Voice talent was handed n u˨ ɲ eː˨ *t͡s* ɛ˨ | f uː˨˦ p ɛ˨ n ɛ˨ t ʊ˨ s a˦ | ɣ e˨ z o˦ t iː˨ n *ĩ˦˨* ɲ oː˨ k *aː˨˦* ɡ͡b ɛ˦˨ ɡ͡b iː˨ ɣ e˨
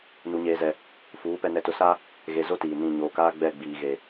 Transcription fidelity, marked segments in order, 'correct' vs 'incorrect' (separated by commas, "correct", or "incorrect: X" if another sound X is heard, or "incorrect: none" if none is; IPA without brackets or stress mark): incorrect: z, correct, incorrect: aː˦